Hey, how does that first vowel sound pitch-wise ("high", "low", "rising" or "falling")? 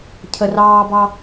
high